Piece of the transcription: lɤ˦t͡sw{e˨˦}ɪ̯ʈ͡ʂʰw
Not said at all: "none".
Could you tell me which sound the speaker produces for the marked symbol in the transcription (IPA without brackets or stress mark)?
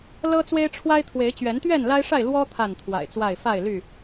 e˦